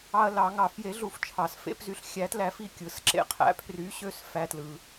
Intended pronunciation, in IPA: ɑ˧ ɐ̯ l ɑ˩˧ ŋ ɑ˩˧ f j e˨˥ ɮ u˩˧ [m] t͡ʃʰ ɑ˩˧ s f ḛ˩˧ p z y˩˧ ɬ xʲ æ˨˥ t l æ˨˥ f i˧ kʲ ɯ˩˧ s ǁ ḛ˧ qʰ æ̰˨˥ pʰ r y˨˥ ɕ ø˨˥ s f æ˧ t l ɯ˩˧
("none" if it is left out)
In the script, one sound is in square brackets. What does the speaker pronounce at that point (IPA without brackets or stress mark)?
f